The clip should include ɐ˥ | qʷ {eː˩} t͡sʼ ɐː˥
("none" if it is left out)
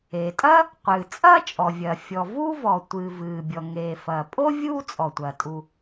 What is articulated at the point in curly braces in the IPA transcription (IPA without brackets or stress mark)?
ɨː˩